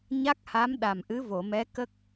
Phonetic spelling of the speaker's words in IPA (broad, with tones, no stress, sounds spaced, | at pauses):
ɲ a˦˥ k̚ h a˧˥ m ɗ a˨˩ m ʔ ɨ˧˥ v o˨˩˨ m ɛ˧˥ k ə˦˥ k̚